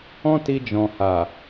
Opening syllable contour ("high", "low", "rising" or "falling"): high